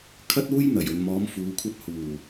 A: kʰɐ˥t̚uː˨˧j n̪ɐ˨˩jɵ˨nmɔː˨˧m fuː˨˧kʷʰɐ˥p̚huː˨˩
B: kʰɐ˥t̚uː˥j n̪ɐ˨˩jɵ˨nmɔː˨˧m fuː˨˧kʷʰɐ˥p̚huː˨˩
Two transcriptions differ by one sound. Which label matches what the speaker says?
B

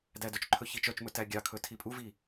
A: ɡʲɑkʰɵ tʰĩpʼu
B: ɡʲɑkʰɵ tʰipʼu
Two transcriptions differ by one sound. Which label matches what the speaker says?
B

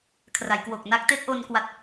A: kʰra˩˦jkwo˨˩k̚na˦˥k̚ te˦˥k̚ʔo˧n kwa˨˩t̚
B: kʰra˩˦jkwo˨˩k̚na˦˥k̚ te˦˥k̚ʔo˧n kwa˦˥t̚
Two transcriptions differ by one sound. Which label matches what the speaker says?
B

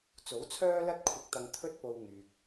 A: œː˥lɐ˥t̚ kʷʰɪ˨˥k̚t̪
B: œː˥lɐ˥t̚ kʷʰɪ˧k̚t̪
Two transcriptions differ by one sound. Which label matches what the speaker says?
B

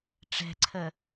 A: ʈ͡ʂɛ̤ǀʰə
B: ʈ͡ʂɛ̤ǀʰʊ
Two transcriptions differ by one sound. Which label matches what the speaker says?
A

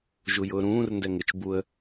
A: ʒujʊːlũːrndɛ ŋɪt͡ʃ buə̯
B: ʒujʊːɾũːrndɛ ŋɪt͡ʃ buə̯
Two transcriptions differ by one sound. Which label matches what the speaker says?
B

